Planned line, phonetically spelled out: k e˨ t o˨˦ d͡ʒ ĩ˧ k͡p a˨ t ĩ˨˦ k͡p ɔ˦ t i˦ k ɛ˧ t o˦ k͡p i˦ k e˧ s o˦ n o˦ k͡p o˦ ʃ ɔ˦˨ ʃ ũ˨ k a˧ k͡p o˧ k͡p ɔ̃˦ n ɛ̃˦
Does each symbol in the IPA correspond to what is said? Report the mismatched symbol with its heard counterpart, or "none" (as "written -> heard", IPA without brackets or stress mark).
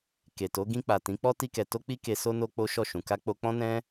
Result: d͡ʒ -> ɡ